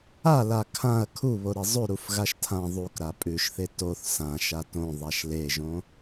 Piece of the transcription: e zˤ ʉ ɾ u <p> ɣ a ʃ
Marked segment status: incorrect: f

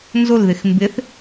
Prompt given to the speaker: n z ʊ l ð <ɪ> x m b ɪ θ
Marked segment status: correct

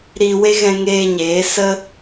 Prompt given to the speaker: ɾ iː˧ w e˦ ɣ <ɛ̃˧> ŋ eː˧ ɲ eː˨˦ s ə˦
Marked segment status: correct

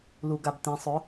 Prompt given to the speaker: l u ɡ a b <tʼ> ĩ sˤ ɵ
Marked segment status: incorrect: t̪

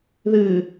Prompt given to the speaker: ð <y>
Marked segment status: incorrect: ɨ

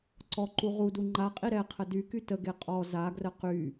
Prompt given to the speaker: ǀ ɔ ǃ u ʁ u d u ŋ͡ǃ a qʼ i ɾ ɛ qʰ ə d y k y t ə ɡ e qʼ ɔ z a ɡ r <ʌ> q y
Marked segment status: incorrect: ə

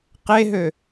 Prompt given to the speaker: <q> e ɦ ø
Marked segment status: correct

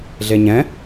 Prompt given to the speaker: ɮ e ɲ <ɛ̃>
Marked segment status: correct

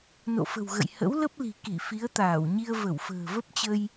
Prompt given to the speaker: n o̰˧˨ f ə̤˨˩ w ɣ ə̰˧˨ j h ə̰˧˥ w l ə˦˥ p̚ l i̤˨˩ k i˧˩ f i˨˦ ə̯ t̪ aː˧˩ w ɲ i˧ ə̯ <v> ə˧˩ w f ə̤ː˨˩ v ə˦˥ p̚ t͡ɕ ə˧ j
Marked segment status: correct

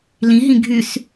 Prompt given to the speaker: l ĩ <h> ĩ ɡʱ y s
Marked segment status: incorrect: ɦ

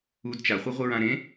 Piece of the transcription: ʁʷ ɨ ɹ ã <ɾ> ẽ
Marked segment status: correct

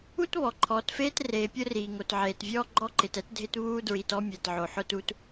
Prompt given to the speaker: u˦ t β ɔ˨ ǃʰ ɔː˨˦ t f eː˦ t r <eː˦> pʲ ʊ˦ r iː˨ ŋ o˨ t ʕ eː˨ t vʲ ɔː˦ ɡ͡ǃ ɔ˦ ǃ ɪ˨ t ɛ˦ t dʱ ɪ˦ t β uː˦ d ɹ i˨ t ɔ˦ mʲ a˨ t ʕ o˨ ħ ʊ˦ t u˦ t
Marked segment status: incorrect: eː˨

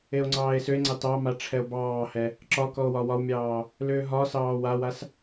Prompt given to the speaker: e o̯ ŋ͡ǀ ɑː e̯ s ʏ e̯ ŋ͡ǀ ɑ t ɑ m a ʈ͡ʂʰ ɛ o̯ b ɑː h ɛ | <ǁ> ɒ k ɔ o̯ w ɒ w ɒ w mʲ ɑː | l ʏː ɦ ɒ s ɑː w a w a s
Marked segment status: correct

